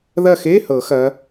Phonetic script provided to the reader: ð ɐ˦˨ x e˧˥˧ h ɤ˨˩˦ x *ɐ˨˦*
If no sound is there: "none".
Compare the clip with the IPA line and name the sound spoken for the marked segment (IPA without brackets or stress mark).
ɐ˨˦